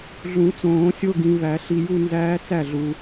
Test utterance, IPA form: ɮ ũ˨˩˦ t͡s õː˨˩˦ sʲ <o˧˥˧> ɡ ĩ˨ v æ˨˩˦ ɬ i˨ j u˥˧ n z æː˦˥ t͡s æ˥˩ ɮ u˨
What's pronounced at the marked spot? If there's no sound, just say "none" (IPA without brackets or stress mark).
o˧˥˧